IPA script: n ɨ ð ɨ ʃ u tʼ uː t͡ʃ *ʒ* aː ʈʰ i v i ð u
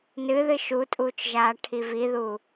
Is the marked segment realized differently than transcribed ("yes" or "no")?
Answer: no